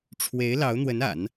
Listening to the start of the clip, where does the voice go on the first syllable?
rising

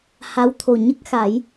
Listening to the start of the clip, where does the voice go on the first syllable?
rising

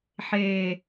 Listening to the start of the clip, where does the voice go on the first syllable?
low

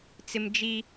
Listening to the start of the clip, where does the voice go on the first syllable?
high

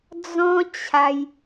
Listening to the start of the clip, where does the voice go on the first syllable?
high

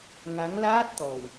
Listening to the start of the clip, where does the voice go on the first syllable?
rising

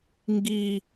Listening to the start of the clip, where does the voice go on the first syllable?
low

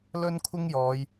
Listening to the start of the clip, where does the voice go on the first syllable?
high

